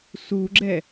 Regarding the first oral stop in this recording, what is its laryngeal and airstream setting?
click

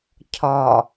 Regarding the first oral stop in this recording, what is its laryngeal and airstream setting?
aspirated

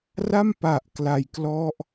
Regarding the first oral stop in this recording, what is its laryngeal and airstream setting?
plain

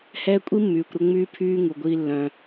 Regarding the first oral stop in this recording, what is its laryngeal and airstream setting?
ejective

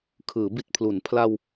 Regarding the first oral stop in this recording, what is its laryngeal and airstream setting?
aspirated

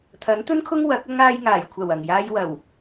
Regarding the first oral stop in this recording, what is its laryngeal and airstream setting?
aspirated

